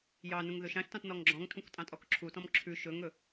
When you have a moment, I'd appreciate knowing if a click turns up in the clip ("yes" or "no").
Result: yes